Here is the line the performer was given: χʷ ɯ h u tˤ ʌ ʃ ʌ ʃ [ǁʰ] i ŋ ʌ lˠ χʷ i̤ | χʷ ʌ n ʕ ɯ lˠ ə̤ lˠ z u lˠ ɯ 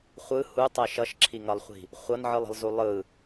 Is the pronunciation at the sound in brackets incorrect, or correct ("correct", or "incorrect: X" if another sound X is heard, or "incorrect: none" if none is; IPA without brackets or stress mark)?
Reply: correct